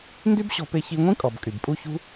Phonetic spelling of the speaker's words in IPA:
n d y˦ b ɕ ɔ̤˧ p e˧ ç i˧ ŋʷ ĩ˦ kʼ ɔ˨ b kʼ y˨ b pʼ u˦ ç ṳ˦

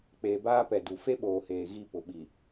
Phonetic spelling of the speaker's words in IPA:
k͡p eː˨ b aː˦ p ɛ˨ d u˨ f e˦ ɓ oː˨ h eː˨ ɣ i˦˨ p ʊ˨ ɓ i˨

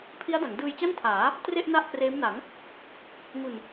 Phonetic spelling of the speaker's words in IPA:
pʰ i˦˥ a̯ d a˩˦ ŋ d ɯː˧ j t͡ɕ a˥˩ n tʰ aː˩˦ | t r e˥˩ ʔ n a˥˩ ʔ k r eː˦˥ m n a˩˦ ŋ | ŋ u˧ n

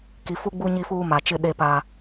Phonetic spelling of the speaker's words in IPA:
k i˨ f u˦ ɡ͡b u˦ ɲ i˦ f uː˦ m a˨ t͡ʃ ɪ˦ ɗ e˦ p a˦

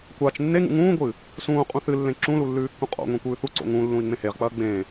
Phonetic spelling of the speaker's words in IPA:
kʷ a t͡ʃ nː e ŋ ṵ ŋ ũː ɡʷ ɨ | s ũː qʼ ũ θ ɨ lː ẽ ǁ ũ l u lː ʉː kː ũ qʼ o̰ ŋʷ ẽ kʷ ʉː θ u ǀ o̰ ŋ ũ lː ũ i̯ ŋ͡m ẽ h e ʁ k͡p ɐː ɡ͡b ẽ

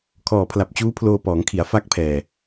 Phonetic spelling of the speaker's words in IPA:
kʰ ɔː˨˩ pʰ l a˨˩ p̚ t͡ɕ uː˦˥ pʰ l oː˧ p ɔː˩˦ ŋ kʰ i˩˦ a̯ f a˦˥ k̚ pʰ ɛː˨˩

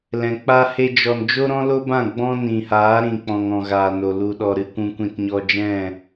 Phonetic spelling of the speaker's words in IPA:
l ɛ̃˨ k͡p aː˦ h e˦ d͡ʒ ɔ˧ n d͡ʒ o˦ ɾ ɔ̃˦ l o˦ b ã˦˨ ɡ͡b ɔ̃˦ n ĩ˨ h aː˨˦ ɾ ĩ˨ k͡p ɔ̃˨ ŋ ɔ̃˨ ɣ aː˨ n o˨ l u˨ ɗ ɔ˨ ɾ ɨ˧ kʷ ũ˧ kʷ ĩ˧ t ɲ ɔ˧ d͡ʒ ɛ̃˦˨

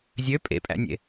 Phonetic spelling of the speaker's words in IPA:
zʲ ø pʼ ḛ pʼ æ̰ nʲ ḛ

